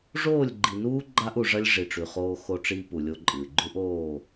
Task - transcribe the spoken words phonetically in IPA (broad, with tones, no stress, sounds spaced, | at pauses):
ʐ oː˦˨ lʲ ɡ͡ǃ i˨ n uː˦ ɡ͡ǃ a˦ ʔ u˨ ʐ ɐ˦ lʲ ʐ i˨ ʈ͡ʂ ʉ˨ χ oː˦ x o˦ ʈ͡ʂ iː˦ p u˨ lʲ o˦ ǃʼ ɨː˨ ɡ͡ǃ ʉ˦ ʔ oː˦˨